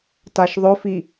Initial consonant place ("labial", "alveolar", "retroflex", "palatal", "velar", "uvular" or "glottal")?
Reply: alveolar